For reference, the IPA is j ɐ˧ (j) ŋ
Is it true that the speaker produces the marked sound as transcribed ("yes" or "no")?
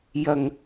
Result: no